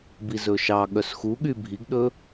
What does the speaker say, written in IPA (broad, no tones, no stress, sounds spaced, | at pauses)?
b i z ɵ ʃ ɑ ɠ œ s x u ɠ y bʱ i ɡ ɗ ɵ